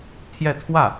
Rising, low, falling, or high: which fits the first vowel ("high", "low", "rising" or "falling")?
falling